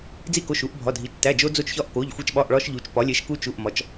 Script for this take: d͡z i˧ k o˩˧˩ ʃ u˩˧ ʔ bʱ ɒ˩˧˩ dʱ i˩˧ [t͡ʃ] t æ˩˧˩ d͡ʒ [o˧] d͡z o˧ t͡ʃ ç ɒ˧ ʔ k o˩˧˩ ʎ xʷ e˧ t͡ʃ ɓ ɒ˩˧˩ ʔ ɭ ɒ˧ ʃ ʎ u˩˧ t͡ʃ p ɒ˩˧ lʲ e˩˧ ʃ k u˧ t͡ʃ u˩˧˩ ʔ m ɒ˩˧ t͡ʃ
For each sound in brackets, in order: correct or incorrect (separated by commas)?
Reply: correct, correct